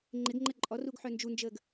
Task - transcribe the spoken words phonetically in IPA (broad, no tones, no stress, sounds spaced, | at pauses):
ŋ͡ǃ ɪ ɡ ŋ͡ǃ ə ǃʼ ɔ r u ɡ ħ œ n d͡ʒ u n d͡ʒ əː ɡ